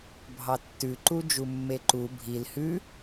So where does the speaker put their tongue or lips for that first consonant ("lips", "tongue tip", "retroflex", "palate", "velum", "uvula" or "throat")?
lips